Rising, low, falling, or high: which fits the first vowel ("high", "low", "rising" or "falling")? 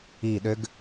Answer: falling